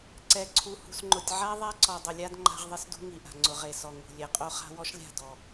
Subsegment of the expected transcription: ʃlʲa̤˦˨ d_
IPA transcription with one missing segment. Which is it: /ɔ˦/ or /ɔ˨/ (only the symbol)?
ɔ˨